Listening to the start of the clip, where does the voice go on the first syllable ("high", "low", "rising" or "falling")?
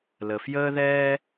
low